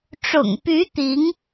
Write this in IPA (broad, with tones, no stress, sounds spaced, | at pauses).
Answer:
ʈ͡ʂ ʊ̰˨˩ ŋ p y˧˥ t̪ i˧˥ ŋ